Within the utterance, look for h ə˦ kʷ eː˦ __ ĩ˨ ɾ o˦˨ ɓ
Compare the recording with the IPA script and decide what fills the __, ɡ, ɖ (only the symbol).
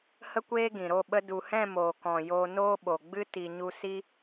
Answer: ɡ